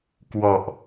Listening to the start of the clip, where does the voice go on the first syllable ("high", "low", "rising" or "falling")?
low